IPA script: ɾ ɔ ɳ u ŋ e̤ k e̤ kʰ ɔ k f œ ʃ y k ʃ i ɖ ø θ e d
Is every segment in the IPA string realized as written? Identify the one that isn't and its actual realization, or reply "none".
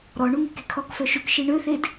ɖ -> ɳ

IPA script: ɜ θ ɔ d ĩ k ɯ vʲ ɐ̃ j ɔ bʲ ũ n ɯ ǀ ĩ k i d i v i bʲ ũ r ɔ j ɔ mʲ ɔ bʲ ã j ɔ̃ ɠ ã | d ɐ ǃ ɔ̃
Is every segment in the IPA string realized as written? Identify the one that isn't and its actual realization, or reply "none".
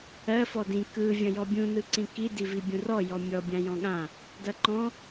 θ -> f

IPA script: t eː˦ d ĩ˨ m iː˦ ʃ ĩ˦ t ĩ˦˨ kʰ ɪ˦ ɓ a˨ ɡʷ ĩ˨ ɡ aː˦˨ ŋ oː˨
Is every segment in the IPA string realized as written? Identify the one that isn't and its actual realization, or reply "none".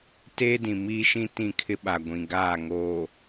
none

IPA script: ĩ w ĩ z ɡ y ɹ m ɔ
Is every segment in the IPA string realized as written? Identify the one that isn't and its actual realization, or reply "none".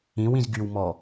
ɹ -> w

